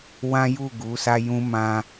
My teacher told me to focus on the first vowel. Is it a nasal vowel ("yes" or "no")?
yes